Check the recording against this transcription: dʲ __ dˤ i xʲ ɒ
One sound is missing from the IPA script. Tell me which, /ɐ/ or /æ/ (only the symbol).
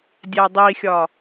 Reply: æ